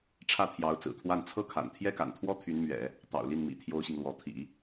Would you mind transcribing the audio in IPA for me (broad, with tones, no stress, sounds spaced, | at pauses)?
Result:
ʈ͡ʂʰ ä˥˩ t̪ʰ j ɑ˧˥ ʊ̯ t͡s ɹ̩˨˩ t̪ʰ w a˥˧ n t͡sʰ ɤ˥˩ kʰ a̰˨˩ n t̪ʰ j ɛ˥ k a̰˨˩ n t̪ʰ w ɔ˥ t̪ʰ y˧˥ n m ɥ ɛ̰˨˩˦ | t̪ ɑ̰˨˩ ʊ̯ l i˥˩ n m ḭ˨˩ t̪ʰ j o˥ ʊ̯ ɕ i˨ ŋ l w ɔ˧˥ t̪ʰ ḭ˨˩˦